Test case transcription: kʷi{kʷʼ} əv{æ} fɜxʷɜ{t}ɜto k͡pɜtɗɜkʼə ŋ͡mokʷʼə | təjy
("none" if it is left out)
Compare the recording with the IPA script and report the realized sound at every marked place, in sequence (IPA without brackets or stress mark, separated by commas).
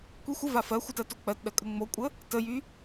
xʷ, a, t